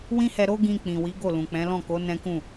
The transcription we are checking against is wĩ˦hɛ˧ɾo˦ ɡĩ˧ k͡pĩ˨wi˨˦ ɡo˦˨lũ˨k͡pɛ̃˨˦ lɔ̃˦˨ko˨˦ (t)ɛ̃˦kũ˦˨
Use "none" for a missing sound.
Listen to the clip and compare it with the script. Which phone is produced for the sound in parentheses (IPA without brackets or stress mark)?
n